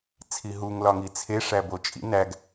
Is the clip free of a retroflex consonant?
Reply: no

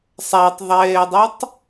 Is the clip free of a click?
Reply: yes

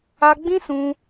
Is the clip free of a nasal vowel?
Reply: no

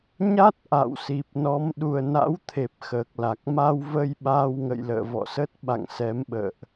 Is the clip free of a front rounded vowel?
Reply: yes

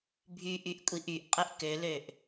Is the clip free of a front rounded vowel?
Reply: no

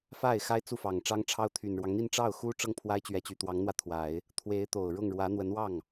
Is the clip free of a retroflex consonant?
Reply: no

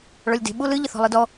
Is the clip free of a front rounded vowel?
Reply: yes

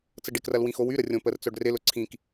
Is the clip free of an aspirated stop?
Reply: no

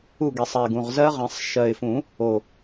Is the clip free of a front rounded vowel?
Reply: yes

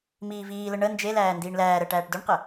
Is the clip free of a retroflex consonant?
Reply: no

